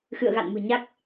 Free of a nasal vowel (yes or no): yes